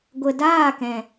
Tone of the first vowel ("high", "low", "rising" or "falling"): low